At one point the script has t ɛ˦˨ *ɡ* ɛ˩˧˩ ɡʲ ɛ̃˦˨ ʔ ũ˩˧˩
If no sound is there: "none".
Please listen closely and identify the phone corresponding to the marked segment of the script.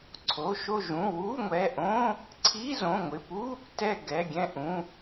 ɡ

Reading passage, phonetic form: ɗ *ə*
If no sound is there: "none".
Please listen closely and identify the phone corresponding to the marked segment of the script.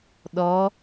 ɔ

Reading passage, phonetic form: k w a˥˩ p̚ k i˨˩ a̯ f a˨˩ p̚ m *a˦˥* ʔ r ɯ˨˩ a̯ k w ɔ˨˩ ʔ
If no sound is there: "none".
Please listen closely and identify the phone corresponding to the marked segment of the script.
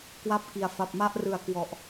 a˥˩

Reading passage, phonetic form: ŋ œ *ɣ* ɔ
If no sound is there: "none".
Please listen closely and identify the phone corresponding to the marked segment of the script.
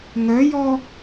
j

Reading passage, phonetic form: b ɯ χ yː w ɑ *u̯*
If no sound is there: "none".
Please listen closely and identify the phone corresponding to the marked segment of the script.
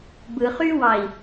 i̯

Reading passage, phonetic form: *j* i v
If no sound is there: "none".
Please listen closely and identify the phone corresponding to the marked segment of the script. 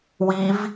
w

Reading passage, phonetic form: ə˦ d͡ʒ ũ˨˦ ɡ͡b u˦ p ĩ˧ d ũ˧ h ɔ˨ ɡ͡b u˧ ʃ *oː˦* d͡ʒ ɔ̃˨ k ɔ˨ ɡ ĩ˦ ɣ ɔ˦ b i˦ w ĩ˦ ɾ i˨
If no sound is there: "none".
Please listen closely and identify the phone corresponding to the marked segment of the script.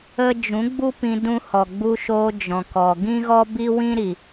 oː˧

